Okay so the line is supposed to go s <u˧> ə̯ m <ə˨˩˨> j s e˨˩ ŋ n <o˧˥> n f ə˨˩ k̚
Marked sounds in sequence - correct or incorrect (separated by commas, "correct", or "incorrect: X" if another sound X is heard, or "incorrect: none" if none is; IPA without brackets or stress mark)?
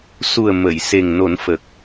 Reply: incorrect: u˨˩, correct, incorrect: o˨˩˦